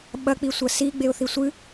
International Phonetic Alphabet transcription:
ɓ ɐ k͡p i sʷ ɐ s i ɡ͡b e ʊ̯ θ i sʷ ɨ

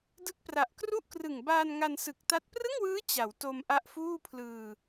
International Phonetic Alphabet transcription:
d ɯ˦˥ k̚ p r a˨˩ ʔ k r u˥˩ ʔ k r ɯ˨˩ ŋ b aː˧ n ŋ a˧ n s ɯ˨˩ k̚ t a˦˥ t̚ p r ɯ˥˩ ŋ w ɯː˦˥ t͡ɕ a˩˦ w t o˧ m ʔ a˦˥ ʔ f uː˥˩ pʰ l ɯː˧

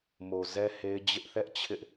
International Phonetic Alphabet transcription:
m o˨ z ɛ˦ h e˦ ɪ̯ d͡ʑ ɪ˦ ʔ θ ɛ˦ ʔ t͡ɕʰ ɪ˦ ʔ

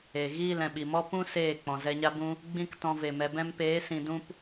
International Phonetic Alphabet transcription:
e˨ ɣ iː˦˨ l ɛ̃˨ ɓ i˨ m ɔ˦ p ũ˦ s eː˦˨ k͡p ɔ̃˨ z ɛ˧ ɲ a˦ b ũ˦ | ɡ͡b ĩ˦ k t ɔ̃˧ v e˨ m ɛ˨ b ɛ̃˧ m p eː˨˦ s ĩ˧ d ũ˦ p

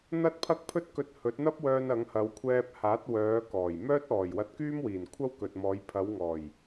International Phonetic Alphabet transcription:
n̪ ɐ˥ t̚ pʰ ɐ˥ k̚ pʰ ɵ˥ t̚ k ɵ˧ t̚ h ɵ˨˥ t̚ n̪ ɐ˥ p̚ w œː˧ n ɐ˨˧ ŋ h ɐ˨˧ w kʷʰ ɛː˧ p̚ h aː˨˥ t̚ w œː˨˧ k ɔː˨˩ j m œː˥ t̚ ɔː˨˩ j w ɐ˧ t̚ k yː˥ m w iː˨˩ n kʷʰ ɐ˥ w k ɵ˨ t̚ m ɔː˨˧ j pʰ ɐ˨˧ w ŋ ɔː˨˩ j

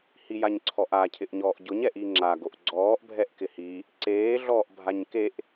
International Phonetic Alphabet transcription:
h i j a ɲ ǀʰ ɔ ʔ a cʰ ɪ ʔ ɲ ɔː ʔ ɟ ʊ ɲ ɛ ʔ i ŋ͡ǁ a ɡ o ʔ ɡ͡ǀ ɔː ʔ bʱ ɛ ʔ k ɪ h i | ǀ eː ɮ ɔː ʔ bʱ a ɲ k e ʔ

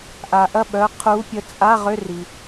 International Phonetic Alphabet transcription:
ʔ a˩ ʔ ɐ˦˨ ɓ œ˩˧˩ qʰ u˨˦ pʲ ə˨˦ t͡sʼ a˧˥˧ ʁ ʏ˧˥˧ r i˩

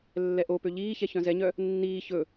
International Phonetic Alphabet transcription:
lː ɛ ʔ o p ø ʎ iː ç ɛ ç œ̃ z ɛ ɲ œ | nː iː ç ɵ

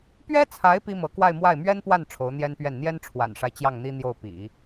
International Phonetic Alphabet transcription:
p ɥ ɛ˥ t͡sʰ a˧˥ ɪ̯ p i˥ m ɤ˧˥ k w a˥˧ ɪ̯ m w a˥˩ ɪ̯ m ɥ ɛ˥ n p w a˥˩ n ʈ͡ʂʰ o˧˥ ʊ̯ n̪ j ɛ˥ n p ɥ ɛ˥˩ n n̪ j ɛ˥ n ʈ͡ʂʰ w a̰˨˩ n ʂ a˦ ɪ̯ t͡ɕ j ɑ˥˩ ŋ n̪ i˥ n̪ j o˥˩ ʊ̯ p ḭ˨˩˦

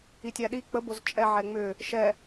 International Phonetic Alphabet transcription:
i tʲ æ ɗ i k͡p ə b o z t͡ʃʼ ɛ ʕ ɛ ŋ͡m ʏ | ʃ ɛ

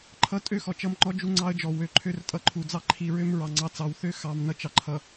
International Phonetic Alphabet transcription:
ǃʰ ʌ˦ tʼ ø˦ x ɔ˨ t͡ʃ ʌ˦ m ŋ͡ǃ ɔ˦ d͡ʒ u˦ ŋ͡ǀ ɑ˦ ə̯ d͡ʒ ɔ˨ w ø˨ ǃʰ ø˦ r tʼ ʌ˨ ǃʰ u˨ d͡z ɑ˦ ǃʰ i˨ ɹ ø˦ m ɹ ɑ˨ ŋ͡ǀ ɑ˨˦ t͡s ɑ˨ w θ ø˦ x ɑ˨ m n ʌ˦ t͡ʃ ɑ˨ ǃʰ ʌ˨

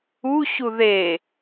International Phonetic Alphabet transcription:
u ɕ u ð e

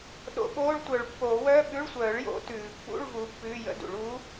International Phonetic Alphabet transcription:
ɗ o̰˨˦ ɓ oː˧˥˧ ɭ tʷ œ˨˩˦ ɭ pː oː˨˩˦ w œː˧˥˧ ɓ ʉ˧˥˧ ɭ sʷ œː˨˩˦ ɭ j o̰˨˦ t ʉː˨˩˦ pː ṵ˧˥˧ ɭ v u˨˦ pː ʉː˧˥˧ j ə̰˧˥˧ d ṵ˨˩˦ ɭ uː˨˦

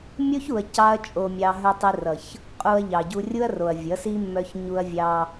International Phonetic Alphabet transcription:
mʲ o˦ ç u˨ ɐ̯ c ɑ˦ ɐ̯ t͡ʃʼ o˧ mʲ ɑ˧ ɦ œ˧ tˤ i˧ r ʌ˨ ç | qʼ u˧ ɐ̯ ʎ ɑ˨ ɟ u˧ rʲ u˦ ɐ̯ r o˨ ɐ̯ vʲ ʌ˨˦ s i˦ mː œ˧ ç ɲ u˧ ɐ̯ vʲ ɑ˧

